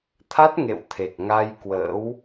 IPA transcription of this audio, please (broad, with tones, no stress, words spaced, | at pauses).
t̪ʰa˦˥t̚ŋḛ˧˨w t̪ʰe˨˩k̚ ŋa˧jkwə̰ː˧˥w